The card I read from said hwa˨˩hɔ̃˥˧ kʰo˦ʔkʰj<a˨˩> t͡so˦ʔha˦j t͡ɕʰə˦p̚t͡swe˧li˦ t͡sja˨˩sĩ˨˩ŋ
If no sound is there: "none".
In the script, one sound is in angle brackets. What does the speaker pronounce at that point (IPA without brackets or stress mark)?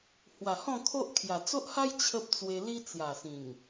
a˨˩